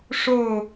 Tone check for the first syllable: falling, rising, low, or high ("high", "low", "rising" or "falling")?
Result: falling